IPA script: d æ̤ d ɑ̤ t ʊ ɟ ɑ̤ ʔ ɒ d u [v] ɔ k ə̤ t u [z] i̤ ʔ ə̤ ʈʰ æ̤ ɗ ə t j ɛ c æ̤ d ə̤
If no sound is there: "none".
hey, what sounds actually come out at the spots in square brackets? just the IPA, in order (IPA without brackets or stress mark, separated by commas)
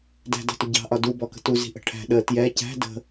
b, z